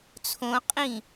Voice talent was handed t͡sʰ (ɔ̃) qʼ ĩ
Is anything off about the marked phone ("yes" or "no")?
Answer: yes